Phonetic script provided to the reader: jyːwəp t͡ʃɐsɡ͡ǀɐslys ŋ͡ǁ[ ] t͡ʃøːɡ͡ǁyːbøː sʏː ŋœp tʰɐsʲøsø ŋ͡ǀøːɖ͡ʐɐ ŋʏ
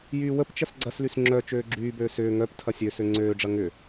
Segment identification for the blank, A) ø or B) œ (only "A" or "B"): B